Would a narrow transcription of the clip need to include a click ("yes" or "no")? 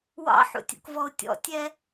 no